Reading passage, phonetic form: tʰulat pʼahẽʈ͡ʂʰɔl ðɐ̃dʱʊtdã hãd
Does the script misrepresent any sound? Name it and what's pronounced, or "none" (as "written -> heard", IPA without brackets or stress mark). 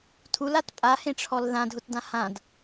ɐ̃ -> ã